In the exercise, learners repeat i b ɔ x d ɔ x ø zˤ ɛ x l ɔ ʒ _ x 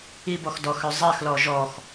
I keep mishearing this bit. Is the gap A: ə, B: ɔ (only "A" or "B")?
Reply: B